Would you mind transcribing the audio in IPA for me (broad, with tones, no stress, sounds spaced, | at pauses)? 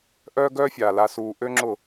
ʔ œː˦ ɡ œː˦ fʲ aː˨ l a˧ s uː˧ ʔ ø˦ ŋ͡ǁ ʊ˦˨